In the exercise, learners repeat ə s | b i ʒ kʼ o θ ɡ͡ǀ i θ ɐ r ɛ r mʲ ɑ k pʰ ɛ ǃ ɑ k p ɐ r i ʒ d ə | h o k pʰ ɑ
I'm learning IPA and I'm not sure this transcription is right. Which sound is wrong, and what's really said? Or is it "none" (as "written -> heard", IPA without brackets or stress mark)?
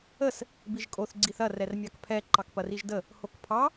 none